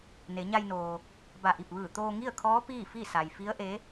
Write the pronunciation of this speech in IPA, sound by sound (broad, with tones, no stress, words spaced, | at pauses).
ne˩˧ɲa˧jnoː˩ | ba˧˩ʔi˧˩p̚ʋɯː˧˩ t̪oː˧ŋi˥˨ə̯kʰɔː˧˥ piː˥˨fi˥˨sa˩j fi˧˥ə̯ʔe˧˥